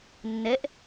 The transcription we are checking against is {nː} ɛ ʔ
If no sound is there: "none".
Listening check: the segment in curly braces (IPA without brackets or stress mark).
nː